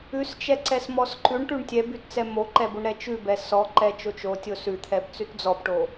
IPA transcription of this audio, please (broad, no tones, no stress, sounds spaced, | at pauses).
ʉ s t͡ʃ ɛ ǀ ɛ s m ɔ s ǃ ʉ ɳ ʈ ʉ ɳ tʲ ɛ b ʉ t t͡s ɛ m o ǃ ɛ b o ɳ ɾ ɛ t͡ʃ ʉ b ɛ s ɔ ǃ ɛ t͡ʃ o t͡ʃ o tʲ o s ʉ t̪ʰ ɛ b t͡s ʉ t d͡z ɔ b ʈ o